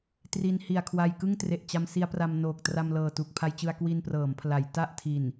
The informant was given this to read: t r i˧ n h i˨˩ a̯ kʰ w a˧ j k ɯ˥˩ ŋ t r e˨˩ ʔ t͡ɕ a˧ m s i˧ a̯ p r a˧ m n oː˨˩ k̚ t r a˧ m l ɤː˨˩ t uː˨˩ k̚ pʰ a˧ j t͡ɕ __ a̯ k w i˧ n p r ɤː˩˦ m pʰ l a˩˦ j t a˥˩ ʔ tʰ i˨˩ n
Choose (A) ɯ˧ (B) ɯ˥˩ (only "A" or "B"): A